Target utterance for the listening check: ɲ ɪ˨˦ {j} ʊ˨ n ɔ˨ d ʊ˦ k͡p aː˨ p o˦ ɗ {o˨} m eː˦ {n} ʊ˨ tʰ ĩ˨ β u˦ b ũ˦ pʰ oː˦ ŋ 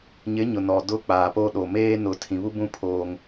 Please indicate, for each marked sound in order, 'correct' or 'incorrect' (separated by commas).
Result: incorrect, correct, correct